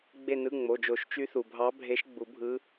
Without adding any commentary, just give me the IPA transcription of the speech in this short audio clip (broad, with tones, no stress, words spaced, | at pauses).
ɡ͡be˦˨nɯ˧˥˧ŋ͡mo˩˧˩d͡ʒo˨˩˦ʃ t͡ʃy˧˥θu˩bʱɑ˧˥ bʱe˧˥ʃɡ͡bu˨˩˦bʱɯ˧˥